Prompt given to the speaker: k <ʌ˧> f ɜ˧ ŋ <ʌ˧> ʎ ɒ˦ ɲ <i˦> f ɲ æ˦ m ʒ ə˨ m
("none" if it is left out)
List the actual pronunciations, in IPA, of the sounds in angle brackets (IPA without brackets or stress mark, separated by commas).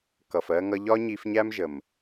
ʌ˨, ʌ˧, i˧